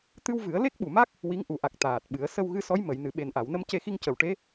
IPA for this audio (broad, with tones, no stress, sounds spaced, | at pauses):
t̪ ɨ˧ w v ɨ˨˩˦ ə̯ l e˦˥ k̚ ɓ u˨˩ m a˦˥ k̚ | w i˧˥ ŋ ʔ u˨˩˦ ʔ a˨˩ k̚ t̪ aː˨˩ t̚ ɓ ɨ˨˩˦ ə̯ s ə˧ w ɣ ɨ˧ s ɔ˧˥ j m ə˨˩˨ j n ɨ˨˩˨ ɓ e˨˩ n ʔ a˨˩˨ w n ə˧ m c e˧ x i˧ ŋ c ə˨˩ w ʈ e˧˥